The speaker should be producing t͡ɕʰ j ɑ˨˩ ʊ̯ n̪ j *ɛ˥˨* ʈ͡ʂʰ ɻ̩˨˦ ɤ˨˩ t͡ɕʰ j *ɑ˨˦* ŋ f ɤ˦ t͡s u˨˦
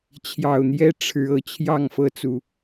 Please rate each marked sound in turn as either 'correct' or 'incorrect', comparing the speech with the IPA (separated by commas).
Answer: incorrect, incorrect